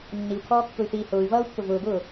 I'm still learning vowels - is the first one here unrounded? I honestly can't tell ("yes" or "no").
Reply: yes